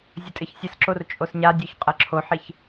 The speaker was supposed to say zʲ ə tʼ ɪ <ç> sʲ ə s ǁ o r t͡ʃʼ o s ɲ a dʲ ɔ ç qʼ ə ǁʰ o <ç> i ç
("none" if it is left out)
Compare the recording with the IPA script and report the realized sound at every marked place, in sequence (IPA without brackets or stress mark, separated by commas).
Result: ç, ħ